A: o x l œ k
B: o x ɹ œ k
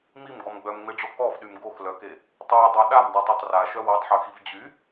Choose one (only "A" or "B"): A